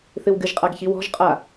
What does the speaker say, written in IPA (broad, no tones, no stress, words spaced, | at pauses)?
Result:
θɨwɡɨʒqʼaɡ çiwɔ̤ʒqʼa